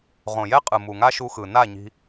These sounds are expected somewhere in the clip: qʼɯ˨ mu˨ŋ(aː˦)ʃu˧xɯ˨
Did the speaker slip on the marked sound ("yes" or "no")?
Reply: yes